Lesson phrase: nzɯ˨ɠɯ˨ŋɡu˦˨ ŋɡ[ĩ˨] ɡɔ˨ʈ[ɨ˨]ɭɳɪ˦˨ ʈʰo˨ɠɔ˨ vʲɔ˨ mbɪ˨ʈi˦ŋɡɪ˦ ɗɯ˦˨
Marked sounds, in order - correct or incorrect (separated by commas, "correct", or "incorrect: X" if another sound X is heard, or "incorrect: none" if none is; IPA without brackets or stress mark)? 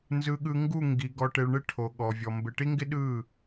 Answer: incorrect: i˨, incorrect: e˨